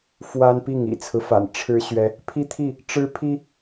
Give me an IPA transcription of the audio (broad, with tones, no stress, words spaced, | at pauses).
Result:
fwa˦npi˥˨ŋ ḭ˨˩t͡sʰɹ̩˦fa̰˨˩n ʈ͡ʂʰɻ̩˦ ɕɥɛ˦ | pʰi˦t̪ʰi˥˨ | ʈ͡ʂɻ̩˦pʰi˦